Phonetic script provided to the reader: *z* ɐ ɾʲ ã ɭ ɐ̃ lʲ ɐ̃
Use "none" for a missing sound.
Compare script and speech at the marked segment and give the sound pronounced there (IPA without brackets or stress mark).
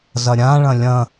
z